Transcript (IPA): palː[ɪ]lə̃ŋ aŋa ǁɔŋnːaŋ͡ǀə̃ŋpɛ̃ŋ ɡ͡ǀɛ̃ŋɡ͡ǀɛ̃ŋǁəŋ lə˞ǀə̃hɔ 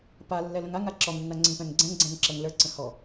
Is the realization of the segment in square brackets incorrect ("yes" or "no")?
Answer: yes